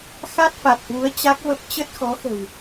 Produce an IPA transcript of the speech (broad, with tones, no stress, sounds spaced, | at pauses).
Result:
x a˦˥ t̚ f a˨˩ t̚ h w u˨˦ ə̯ t͡ɕ a˦˥ k̚ v ə˦˥ p̚ t͡ɕ ə˦˥ t̚ x ɔ˨˦ x ə̤˨˩ w